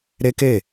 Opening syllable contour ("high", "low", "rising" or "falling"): high